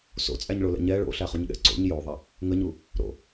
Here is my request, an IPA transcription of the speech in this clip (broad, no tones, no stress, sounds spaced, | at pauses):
s o̰ t͡sʼ æ ɲ ɭ o l ɛ̰ ɲ ɛ ɭ o̰ ɬ æ χ u ɲ ɠ ɛ̰ ǀ o̰ ɲ j o ðˤ a | ŋ ə ɲ u | ɾ o̰